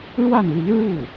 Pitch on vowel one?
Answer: falling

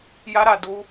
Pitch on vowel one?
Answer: high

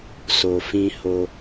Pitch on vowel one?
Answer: low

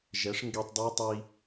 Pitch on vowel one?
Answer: rising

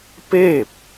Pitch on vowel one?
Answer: falling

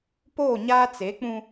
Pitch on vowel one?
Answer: falling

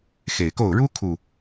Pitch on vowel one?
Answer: low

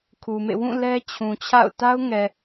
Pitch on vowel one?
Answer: low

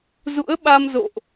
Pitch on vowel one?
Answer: rising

